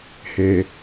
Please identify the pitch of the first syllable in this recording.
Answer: low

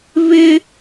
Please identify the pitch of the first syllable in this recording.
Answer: high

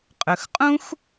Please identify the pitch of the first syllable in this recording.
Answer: low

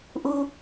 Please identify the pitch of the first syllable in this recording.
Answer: low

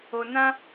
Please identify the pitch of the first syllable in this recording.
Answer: low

